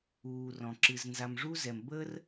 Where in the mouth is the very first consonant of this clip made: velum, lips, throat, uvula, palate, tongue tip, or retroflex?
tongue tip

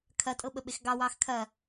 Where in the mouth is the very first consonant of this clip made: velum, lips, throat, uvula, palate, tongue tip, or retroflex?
velum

